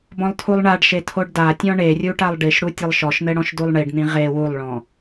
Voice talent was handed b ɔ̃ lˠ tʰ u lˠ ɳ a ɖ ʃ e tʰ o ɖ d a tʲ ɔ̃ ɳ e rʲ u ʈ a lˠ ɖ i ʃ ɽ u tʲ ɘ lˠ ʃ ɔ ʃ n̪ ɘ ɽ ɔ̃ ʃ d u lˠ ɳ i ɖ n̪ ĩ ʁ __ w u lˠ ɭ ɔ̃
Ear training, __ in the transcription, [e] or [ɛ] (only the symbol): e